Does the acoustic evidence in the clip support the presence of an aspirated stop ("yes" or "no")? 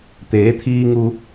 yes